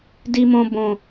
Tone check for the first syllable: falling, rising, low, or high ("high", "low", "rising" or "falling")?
high